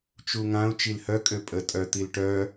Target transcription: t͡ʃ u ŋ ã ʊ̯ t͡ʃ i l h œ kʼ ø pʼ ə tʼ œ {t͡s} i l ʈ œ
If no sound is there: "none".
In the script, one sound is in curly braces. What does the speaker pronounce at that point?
t̪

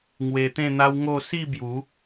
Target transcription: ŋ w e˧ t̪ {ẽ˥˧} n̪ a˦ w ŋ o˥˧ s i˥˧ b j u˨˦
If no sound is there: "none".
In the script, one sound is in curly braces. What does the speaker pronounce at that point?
ẽ˥˧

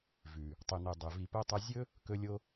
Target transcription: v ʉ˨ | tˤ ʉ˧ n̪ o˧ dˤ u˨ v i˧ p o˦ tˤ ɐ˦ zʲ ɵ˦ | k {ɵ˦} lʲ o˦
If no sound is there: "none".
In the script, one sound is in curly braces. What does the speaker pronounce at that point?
ɵ˦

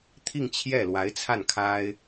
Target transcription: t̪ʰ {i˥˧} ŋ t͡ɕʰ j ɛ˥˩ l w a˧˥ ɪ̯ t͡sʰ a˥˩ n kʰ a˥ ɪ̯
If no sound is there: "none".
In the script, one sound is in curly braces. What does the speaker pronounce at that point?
i˥˧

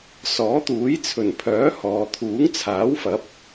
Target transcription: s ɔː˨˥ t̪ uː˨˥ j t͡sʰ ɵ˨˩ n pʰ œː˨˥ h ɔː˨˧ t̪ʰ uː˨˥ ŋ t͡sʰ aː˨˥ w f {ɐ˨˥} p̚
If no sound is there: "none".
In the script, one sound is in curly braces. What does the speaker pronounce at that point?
ɐ˨˥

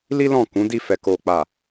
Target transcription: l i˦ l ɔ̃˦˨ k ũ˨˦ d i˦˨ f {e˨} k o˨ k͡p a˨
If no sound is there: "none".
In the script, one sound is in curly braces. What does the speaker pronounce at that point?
ɛ˨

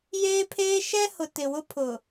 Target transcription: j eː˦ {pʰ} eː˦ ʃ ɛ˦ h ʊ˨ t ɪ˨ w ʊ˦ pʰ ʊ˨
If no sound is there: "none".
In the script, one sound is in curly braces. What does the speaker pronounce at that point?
pʰ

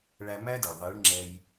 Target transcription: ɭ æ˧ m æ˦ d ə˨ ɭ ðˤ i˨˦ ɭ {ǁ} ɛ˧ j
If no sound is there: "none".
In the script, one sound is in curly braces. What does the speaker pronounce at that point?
ŋ͡ǁ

